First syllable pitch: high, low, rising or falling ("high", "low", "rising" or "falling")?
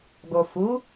low